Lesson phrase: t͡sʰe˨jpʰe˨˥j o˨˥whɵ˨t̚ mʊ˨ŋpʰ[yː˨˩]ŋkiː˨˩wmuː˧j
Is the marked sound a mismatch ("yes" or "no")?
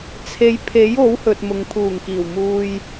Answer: yes